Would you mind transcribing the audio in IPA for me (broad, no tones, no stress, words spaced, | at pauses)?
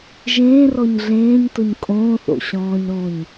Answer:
ʒẽː rɔɲɮẽːɲtʊɲ kʼõːθo̰ ɕɔ̃ːɲɾõːɲ